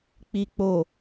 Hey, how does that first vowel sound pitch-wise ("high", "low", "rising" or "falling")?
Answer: low